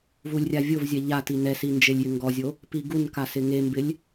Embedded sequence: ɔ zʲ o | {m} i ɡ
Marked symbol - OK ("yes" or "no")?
no